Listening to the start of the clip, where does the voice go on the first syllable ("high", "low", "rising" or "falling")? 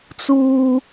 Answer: high